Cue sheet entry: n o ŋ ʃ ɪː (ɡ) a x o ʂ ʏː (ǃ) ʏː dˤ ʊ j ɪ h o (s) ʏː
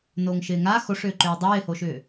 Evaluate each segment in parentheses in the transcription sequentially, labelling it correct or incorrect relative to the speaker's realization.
incorrect, correct, incorrect

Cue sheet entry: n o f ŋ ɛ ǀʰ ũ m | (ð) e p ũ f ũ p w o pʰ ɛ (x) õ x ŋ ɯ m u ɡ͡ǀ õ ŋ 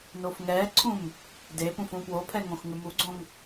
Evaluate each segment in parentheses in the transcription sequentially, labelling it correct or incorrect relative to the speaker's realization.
incorrect, incorrect

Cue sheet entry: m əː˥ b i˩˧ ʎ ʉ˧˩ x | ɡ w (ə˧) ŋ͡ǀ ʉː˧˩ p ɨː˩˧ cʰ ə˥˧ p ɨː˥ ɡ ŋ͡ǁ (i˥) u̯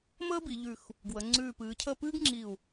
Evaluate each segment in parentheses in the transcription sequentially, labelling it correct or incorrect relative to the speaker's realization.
incorrect, incorrect

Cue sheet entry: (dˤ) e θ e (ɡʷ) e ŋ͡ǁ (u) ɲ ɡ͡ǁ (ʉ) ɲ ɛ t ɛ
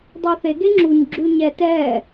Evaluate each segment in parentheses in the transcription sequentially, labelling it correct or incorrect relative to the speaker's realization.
correct, incorrect, correct, correct

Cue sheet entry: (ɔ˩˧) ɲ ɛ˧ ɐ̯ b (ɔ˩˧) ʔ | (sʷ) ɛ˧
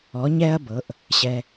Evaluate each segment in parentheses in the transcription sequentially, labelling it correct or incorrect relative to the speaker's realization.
correct, incorrect, incorrect

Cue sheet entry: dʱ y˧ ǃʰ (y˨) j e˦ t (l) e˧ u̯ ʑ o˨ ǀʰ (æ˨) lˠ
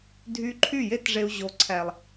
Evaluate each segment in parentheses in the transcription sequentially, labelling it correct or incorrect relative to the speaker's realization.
incorrect, incorrect, correct

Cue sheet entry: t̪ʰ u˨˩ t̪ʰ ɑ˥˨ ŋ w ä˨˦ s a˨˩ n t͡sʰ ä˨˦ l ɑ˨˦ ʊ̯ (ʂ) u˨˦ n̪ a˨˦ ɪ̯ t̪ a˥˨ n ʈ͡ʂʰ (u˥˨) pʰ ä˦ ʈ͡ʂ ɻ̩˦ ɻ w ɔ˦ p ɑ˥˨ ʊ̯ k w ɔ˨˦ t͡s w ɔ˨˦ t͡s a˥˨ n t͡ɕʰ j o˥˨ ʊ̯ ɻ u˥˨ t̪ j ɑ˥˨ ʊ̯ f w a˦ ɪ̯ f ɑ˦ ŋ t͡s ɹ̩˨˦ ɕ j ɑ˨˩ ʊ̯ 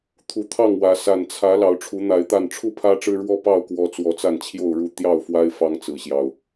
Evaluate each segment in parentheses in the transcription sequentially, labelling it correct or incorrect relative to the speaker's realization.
incorrect, correct

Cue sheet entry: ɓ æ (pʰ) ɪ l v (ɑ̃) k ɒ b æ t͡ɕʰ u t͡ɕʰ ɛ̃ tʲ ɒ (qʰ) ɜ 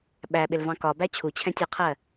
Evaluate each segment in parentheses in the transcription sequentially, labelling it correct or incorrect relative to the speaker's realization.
incorrect, correct, correct

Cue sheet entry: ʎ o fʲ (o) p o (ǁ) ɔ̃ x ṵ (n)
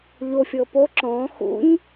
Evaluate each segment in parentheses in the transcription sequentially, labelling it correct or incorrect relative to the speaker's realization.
incorrect, correct, incorrect

